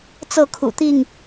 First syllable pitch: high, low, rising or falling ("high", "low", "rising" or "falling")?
falling